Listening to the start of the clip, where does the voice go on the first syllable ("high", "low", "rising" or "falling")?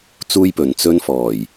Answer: high